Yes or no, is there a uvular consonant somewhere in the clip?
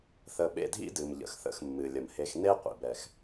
yes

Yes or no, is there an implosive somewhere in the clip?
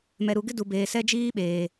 yes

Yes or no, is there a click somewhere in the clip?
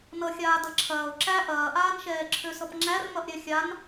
yes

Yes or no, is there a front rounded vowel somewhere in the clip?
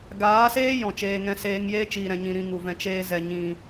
no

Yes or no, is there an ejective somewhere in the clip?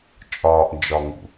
yes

